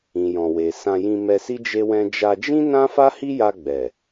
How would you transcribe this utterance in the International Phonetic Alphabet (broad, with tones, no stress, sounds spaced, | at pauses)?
ĩ˨ j ɔ̃˨ w e˨ s ã˧ j ĩ˧ m ɛ˧ s i˦ d͡ʒ e˦ w ɛ̃˦ d͡ʒ a˧ d͡ʒ ĩ˦ n ã˦ f a˦ h i˦ j a˧ ɡ͡b ɛ˨